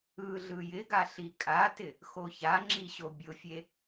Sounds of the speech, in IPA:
ɯ ɮ ɯ j ɪ ɡ a ɬ i kʼ a t ɪ | x o ç a ŋ͡ǁ i ɕ o bʲ ʊ fʲ e

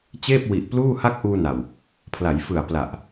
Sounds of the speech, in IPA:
t͡ɕ eː˥˩ p̚ w i˨˩ ʔ p l uː˥˩ h a˥˩ k̚ ʔ uː˧ n a˨˩ w | pʰ l a˩˦ j f ɯ˨˩ a̯ p l a˨˩ ʔ

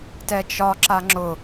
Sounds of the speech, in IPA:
t ɛ t͡ʃ ɒ ǁ a ŋ͡ǁ ʊ

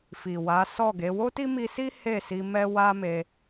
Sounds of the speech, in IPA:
f i˨ w a˨˦ s ɔ˦˨ ɡ e˨˦ w o˦ t i˦ m i˧ s i˦ h e˦˨ s i˧ m ɛ˦ w a˦ m e˧

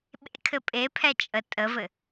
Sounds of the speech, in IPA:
ɓ ḛ kʰ ɘ pʼ e pʰ ɛ t͡ʃʼ ə tʼ ə v ɘ

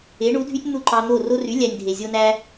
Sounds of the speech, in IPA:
e˩˥ ɳ u˩˥ dʱ y˥ tʲ n̪ u˥˩ ǃ ɑ˧ n̪ o˥˩ r o˧ r y˩˥ lʲ æ˧ nʲ dʱ e˩ zʲ o˥ n æ˥

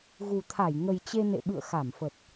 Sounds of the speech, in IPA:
ɣ u˨˩ t̪ʰ a˧˩ j ŋ ə˨˩ j t͡ɕ e˧ n ḛ˧˨ ɓ ɨ̰˧˨ ə̯ x a˧˩ m f ə˨˩ t̚

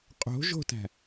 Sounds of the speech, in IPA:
qʼ o̤ ʒ o̤ t æ̤

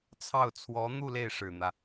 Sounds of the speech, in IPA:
t͡sʰ ɑ˥˩ ʊ̯ t͡sʰ w ɔ˧˥ n̪ u˥˧ l e˥˩ ɪ̯ ʂ ɻ̩˨˩ n̪ ä˦

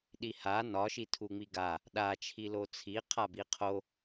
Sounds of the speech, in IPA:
ɗ i h a n ɒ ʃ i tʰ u ŋ͡m i ɡ a | ɗ a t͡ʃʰ i l o t͡sʰ i qʰ a b i qʰ o

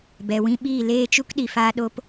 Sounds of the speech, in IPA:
b ɛ˨ w ĩ˦ ɓ iː˦˨ l eː˦˨ t͡ʃ u˦ k ɗ i˨ f aː˦ ɗ o˦ p

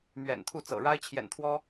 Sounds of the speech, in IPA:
m ɥ ɛ̰˨˩ n t̪ʰ u˥˩ t͡s ɤ̰˨˩ ɻ a˥ ɪ̯ t͡ɕʰ j ɛ̰˨˩ n t̪ʰ w ɔ˥

